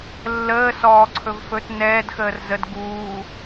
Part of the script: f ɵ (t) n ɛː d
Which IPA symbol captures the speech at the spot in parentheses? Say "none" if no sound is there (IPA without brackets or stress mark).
t